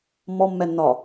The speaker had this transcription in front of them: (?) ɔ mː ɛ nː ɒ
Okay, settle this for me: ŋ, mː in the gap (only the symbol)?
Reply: mː